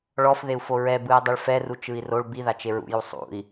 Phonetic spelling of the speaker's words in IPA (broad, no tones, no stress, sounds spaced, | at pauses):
ɭ ɔ f ð e u̯ f o ɹ ɛ b ɯ i̯ dˤ i ɭ f ɛ r u t͡ʃ ɯ i̯ r o ɭ b i ð a t͡ʃ e ɹ ṵ j u sˤ ṵ i̯